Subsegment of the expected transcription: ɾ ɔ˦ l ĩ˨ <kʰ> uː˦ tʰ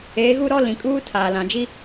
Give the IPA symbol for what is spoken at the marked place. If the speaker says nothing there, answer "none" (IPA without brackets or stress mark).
kʼ